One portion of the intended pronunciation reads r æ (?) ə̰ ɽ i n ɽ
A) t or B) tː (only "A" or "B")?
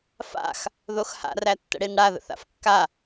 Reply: B